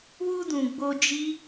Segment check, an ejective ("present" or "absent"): absent